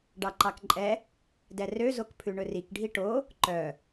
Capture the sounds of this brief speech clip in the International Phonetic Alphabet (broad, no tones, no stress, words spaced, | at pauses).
ɖɑǃɑkǃʼɛ | dɛrø zokpʰʉɳɵrik ɖʱiʈo | ǃœ